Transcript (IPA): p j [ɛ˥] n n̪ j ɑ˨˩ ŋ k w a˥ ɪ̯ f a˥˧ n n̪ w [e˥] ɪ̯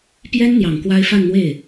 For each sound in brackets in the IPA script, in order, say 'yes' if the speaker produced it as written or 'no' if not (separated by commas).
yes, no